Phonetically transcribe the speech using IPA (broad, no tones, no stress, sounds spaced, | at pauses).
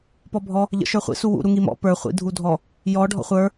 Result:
p ɔ bʱ ɔ | ʎ ə̰ ʃ ə˞ χʷ ḭ s u w ṵ ɾ u ŋ i m ɔ̰ p ə˞ χʷ ḭ dʱ u dʱ ɔ | j ɔ ɖʱ ɔ̰ χʷ ə˞